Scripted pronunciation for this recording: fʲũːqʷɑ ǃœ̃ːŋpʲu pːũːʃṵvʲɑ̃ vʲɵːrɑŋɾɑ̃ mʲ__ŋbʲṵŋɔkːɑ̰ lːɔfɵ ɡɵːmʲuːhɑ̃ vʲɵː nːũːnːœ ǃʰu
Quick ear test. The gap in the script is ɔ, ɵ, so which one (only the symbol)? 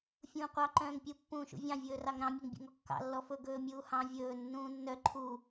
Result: ɵ